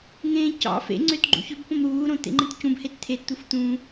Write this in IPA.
ŋ ẽː c ɑ̰ f ḛ ŋ͡ǀ ø t ɡ͡ǃ ṵ ç ø b p õ m ɾ uː ɾ õ t̪ ḛ ŋ͡ǃ ẽ t c ũ b h e t t̪ʰ e t t̪ u f t̪ ũ

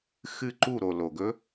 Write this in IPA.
x ɨ˥˧ ǃ u˥˧ ɾ o˨ l o˨ ɡ ɵ˦˥

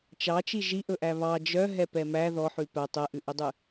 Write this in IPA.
t͡ʃ ɑ t͡ʃ i ʒ i ʔ ɵ ʔ æ β ɑ d͡ʒ œ ɦ ɛ p ɛ m æ ð ɔ ħ ʉ p æ tˤ ɛ ʔ ʉ ʔ ɵ dˤ ʉ

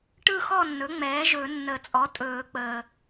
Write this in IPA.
ʈ ɯ˥˨ x ɔ˥˨ nː ɵ˩˥ ŋ͡m ɛː˩˥ ʒ ɵ˨˩˦ nː ə˨˩˦ t͡sʼ ɔ˩˥ tʼ ɵː˨˩˦ k͡p əː˨

